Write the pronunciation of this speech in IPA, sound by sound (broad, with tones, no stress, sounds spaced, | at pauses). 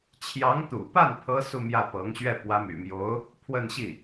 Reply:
t͡ɕʰ j ɑ˧˥ ŋ t̪ ṵ˨˩ p a˥˩ n pʰ ɤ˥ s u˥˧ m j ä˥˩ p ɤ˧˥ ŋ ɕ ɥ ɛ˥˩ p w ä˧˥ m y̰˨˩ m j o˧˥ ʊ̯ | pʰ w ə˥˧ n ɕ i˥˩